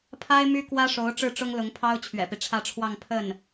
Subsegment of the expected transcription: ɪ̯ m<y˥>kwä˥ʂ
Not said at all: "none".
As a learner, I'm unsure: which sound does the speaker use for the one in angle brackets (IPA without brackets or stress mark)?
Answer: y˥